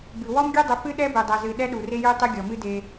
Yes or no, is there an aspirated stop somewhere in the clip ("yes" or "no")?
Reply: no